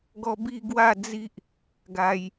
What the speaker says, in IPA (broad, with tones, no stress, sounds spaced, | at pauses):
ɡ ɔ˦ b i˦ ɡ w a˥˧ d͡z i˦ ʔ | ɡ a˧ j